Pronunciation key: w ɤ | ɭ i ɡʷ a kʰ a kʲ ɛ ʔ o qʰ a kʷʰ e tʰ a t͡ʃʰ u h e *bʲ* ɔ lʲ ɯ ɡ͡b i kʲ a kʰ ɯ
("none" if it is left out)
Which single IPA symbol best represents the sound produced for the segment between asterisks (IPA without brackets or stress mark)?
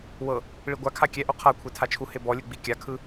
b